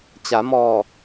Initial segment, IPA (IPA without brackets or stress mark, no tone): t͡ɕ